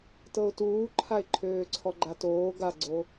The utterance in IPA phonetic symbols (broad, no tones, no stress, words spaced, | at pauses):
tɤʊ̯tuːǃʰaɪ̯ ǃʰøːǀʰɔɡ͡ǃatoː ɡaɡ͡ǀo